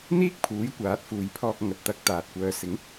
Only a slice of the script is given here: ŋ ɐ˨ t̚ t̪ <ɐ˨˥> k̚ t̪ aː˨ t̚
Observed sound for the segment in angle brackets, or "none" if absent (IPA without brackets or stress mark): ɐ˧